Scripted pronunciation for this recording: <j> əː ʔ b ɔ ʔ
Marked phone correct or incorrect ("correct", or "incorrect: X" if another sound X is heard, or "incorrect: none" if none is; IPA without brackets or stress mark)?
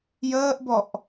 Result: correct